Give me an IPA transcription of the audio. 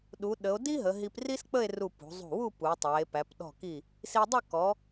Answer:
ɗ u˩˧ ɗ ə˩˧ o̯ d i˥ ɦ ə˩˧ ɦ i˧ p r i˥ s k͡p ə˥˧ e̯ r u˧˩ p ṳ˩˧ zˤ ṳ˧˩ w u˥˧ p u˩˧ tˤ æ˩˧ e̯ p æ˩˧ p ɗ ɔ̤˧˩ k i˧˩ | s i˧ dˤ ə˥˧ k ɔ˩˧

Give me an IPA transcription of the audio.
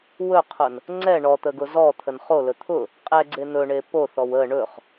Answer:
w ɵ qʰ ʊ n | ŋ͡ǀ ɛ ɳ ɔ t̪ ə ɡ ʊ z ɔ t̪ʰ ə n χ o l ɵ t̪ʰ ʊ | qʼ ɛ ɡ͡ǀ e n̪ ɵ ɳ e p o θ ɔ w ə ɳ ɵ χ

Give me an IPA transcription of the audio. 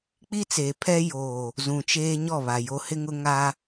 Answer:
k͡p i˦ t͡s eː˨ pʰ ɛ˦ j oː˨ | z ũ˨ t͡ʃ eː˦ ɲ ɔ˦˨ β a˨ j o˨ h ɪ˦ ŋ ʊ˦ ŋ a˦

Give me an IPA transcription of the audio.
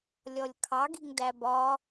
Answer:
lʲ ɔ lʲ kʰ ɑ ɡ i̤ ŋ d æ b ɒ

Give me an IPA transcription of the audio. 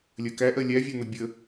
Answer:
lʲ ɜ k æ ʔ ɜ lʲ æ vʲ æ n̪ ʌ bʲ ə

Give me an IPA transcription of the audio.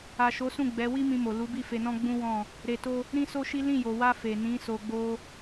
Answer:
a˨ ʃ o˨˦ s ũ˦˨ ɡ͡b ɛ˨˦ w i˦ m ĩ˧ m o˨ l u˨˦ b i˦˨ f e˧ n ɔ̃˦ ɡ͡b ũ˦ w ɔ̃˦˨ | ɾ e˧ t o˦ | ɾ ĩ˦ s o˦ ʃ i˦ l ĩ˦˨ j o˨ w a˧ f e˨ n ĩ˨˦ s o˧ ɡ͡b o˦

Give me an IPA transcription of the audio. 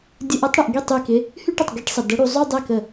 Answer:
dʲ ə˧˥˧ ʔ ə˧˥˧ tˤ ɽ ə˨ ʔ ɡ i˥˩ tˤ y˥˧ k ɪ˧˥˧ | h y˥˧ ʈ ə˨ tˤ ɡ i˧˥˧ ʈ sˤ ə˨ d ə˨˦ ɽ u˨˦ zˤ y˥˧ dˤ ɛ˥˩ k ə˥˩

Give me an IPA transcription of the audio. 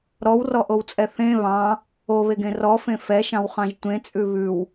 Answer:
ɾ ɔ w r ɔ ʔ o w t͡sʼ ɛ θ ẽ β ɑ̃ | o β e ɡ ẽ r ɔ f ẽ f ɛ ʃ ɑ̃ w χ ɑ̃ ʒ tʷ ẽ t͡sʼ ʉ β ʉ w

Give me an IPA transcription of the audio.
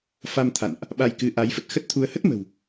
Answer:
f a˧ m t̪ʰ a̰˧˨ n ʔ | ɓ a˧ j k ɨ˨˦ ʔ a˨˦ j f ə˨˩ t̚ x ə˦˥ t̚ t̪ʰ u˧ ə̯ h ə˦˥ t̚ m ə̤˨˩ w

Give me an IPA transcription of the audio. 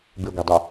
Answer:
b ɨ ɡʷ i dˤ u

